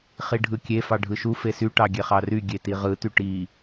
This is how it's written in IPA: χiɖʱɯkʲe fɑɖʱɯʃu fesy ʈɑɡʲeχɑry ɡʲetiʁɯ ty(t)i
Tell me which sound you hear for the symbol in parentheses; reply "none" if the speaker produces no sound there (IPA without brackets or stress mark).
ʈ